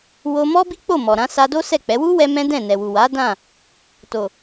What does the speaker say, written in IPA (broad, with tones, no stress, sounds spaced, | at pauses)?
w o˧ m ɔ˦ b i˦ k͡p o˦˨ m ɔ˨ ɾ ã˨˦ s a˧ d o˦ s ɛ˦˨ k͡p ɛ˨˦ w u˦ w ɛ˧ m ɛ̃˦ d ɛ̃˦˨ n ɛ˨ w u˨ w a˨˦ d ã˦˨ | t o˨